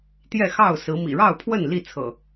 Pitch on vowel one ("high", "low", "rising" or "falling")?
falling